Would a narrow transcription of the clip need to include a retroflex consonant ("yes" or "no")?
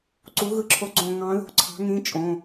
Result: no